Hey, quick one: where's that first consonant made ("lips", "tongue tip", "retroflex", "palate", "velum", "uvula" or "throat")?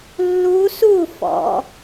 tongue tip